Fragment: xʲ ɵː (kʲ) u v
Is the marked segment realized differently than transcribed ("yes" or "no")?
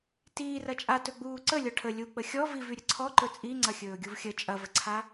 yes